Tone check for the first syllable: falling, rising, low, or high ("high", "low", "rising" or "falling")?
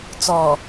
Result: low